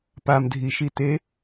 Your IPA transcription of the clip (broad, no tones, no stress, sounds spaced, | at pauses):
p a m dʱ i ʃ i t e